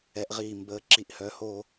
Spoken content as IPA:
ɛ˧˥ʔʁiː˥˧ mbəː˧˥ ǁi˥˧ʔ hœː˧˥hoː˥˧

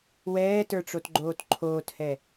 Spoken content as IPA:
wɛːtə˞ʈ͡ʂotɡ͡ǃoːt ǃʰoːthɛ

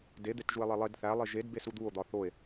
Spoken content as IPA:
de d̪etʒue̯lˠelˠed θæ lˠiʒed besud̪uo̯ d̪ɒθoe̯

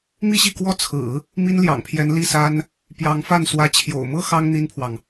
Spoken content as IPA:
mi˥˧ɕi˥˩kwɔ˥ t͡sʰɹ̩˨˩˦ | mi˥nljɑ̰˨˩ŋpʰjɛ˧˥n li˥˩sa˥n | pjɑ˧˥ŋfa˥˩n swä˧˥ t͡ɕʰjo̰˨˩ʊ̯mɤ˥ xɑ˥ŋ n̪i˥npʰwɑ˨ŋ

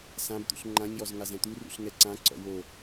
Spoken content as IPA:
sãbt̪ṵɬ ŋ͡ǃãɲjɔz ŋazɛ̃t̪urṵɬ ŋɛǀãǀɔ̰ wo

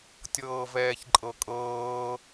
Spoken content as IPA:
tʲɤːvɛːçǃʼɤkʼɤː

